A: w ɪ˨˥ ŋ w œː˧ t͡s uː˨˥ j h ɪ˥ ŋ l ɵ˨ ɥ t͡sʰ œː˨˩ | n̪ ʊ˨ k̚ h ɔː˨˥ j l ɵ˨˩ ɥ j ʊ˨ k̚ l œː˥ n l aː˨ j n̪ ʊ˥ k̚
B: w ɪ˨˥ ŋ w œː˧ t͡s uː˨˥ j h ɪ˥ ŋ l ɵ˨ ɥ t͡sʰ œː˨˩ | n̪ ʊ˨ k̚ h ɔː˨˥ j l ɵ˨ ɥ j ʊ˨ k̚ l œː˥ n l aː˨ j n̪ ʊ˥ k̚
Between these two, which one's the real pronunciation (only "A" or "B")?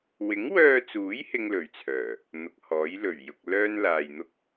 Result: A